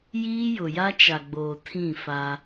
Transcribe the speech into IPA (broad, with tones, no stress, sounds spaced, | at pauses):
j iː˦ j ʊ˨ j a˦ t͡ʃ a˨ ɡ͡b oː˨ tʰ ĩ˦˨ f a˦